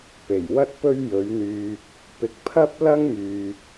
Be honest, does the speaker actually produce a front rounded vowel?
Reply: yes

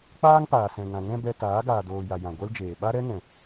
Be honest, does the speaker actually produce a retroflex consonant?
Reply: no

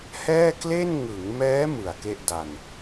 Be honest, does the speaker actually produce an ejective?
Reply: no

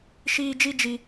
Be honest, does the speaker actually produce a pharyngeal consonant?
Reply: no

